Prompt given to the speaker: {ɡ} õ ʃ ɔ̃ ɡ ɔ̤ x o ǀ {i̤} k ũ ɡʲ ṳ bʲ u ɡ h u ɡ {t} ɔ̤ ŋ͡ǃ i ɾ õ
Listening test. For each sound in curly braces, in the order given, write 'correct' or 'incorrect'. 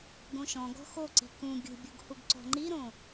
correct, correct, incorrect: ǀ

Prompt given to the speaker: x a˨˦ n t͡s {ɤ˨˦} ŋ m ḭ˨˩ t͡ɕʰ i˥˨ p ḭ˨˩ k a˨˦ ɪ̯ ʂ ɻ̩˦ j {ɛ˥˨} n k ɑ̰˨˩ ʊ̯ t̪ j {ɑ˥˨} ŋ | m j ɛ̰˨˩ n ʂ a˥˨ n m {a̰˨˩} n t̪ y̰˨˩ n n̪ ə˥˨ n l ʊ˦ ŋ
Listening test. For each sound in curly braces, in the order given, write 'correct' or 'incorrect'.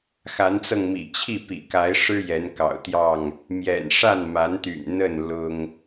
incorrect: ɤ˧, incorrect: ɛ˨˦, correct, incorrect: a˨˦

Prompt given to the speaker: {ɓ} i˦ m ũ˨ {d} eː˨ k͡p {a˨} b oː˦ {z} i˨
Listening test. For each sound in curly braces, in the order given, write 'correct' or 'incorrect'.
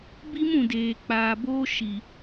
incorrect: b, correct, incorrect: aː˨, incorrect: ʃ

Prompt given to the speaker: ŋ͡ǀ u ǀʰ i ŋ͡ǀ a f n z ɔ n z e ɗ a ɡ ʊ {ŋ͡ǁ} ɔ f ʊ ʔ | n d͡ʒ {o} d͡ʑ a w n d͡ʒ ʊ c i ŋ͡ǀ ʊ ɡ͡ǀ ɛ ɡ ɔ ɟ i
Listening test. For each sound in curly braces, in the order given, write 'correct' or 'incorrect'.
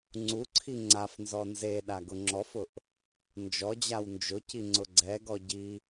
correct, incorrect: ɔ

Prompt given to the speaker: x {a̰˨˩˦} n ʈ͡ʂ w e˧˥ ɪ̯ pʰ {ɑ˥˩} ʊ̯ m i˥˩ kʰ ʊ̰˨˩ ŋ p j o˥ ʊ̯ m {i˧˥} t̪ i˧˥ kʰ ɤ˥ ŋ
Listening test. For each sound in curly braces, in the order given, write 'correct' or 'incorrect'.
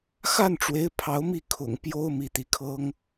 incorrect: a˥˩, incorrect: ɑ˧˥, correct

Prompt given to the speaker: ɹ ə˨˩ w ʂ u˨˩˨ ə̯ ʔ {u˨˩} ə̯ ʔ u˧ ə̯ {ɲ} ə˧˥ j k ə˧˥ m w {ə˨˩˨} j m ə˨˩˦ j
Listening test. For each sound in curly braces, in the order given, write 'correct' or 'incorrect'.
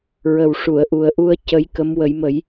correct, incorrect: c, incorrect: ə˨˩˦

